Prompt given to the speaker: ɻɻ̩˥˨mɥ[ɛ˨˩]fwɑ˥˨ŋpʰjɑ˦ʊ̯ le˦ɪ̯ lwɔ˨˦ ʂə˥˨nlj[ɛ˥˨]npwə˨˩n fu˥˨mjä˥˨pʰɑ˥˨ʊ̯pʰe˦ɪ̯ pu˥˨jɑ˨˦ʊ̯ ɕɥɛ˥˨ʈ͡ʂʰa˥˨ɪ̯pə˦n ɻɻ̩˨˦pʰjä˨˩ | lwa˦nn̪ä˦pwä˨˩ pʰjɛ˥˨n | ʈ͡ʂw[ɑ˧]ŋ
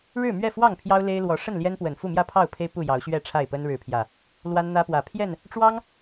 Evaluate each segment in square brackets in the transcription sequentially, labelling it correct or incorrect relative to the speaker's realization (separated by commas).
incorrect, incorrect, incorrect